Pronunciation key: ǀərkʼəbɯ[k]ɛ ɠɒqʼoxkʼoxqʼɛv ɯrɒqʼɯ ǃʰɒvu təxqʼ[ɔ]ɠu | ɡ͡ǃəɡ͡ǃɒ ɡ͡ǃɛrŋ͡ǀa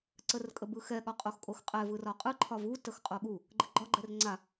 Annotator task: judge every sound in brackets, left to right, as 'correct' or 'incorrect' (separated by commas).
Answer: incorrect, incorrect